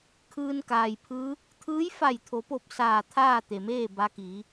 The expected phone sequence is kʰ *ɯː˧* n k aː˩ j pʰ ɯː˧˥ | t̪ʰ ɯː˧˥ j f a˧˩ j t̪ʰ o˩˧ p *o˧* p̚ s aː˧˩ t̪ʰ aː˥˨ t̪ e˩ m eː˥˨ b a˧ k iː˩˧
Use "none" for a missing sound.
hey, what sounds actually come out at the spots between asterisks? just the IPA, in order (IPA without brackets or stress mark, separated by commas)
ɯː˧, o˧˩